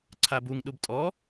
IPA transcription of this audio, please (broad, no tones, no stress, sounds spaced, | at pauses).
ǀʰ a b u ŋ ɗ u b tʼ ɔ